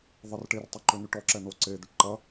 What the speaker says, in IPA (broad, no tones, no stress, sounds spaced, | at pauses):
ðˤ ə r ʈ e r tˤ o ǃ ø n y ʈ ɔ ǁ ɛ n o ǀ e d̪ ʏ ʈ ǃ ɐ